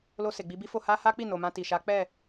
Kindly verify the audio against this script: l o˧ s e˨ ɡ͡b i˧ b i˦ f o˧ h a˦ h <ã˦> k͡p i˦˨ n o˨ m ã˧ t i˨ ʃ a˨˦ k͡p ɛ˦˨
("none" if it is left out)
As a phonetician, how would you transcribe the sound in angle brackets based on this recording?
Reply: a˦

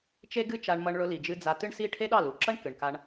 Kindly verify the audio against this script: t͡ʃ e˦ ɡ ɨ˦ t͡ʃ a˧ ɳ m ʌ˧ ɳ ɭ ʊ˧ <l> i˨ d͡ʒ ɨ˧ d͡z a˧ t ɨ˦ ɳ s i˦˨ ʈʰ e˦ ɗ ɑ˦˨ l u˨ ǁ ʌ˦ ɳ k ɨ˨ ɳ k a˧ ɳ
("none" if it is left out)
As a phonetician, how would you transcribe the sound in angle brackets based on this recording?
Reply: l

